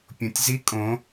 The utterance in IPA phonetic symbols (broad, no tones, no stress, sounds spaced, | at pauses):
pʲ õ tʲ z i kʼ õ